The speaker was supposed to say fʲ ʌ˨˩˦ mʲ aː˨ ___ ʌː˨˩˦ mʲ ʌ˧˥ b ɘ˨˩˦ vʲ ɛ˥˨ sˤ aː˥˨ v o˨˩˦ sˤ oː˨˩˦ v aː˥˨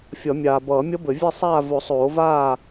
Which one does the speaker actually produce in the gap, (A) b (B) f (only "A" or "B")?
A